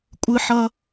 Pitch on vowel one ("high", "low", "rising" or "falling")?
high